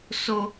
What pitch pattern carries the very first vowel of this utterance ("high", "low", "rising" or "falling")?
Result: high